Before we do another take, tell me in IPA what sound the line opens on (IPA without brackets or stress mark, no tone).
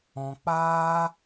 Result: ɔ̃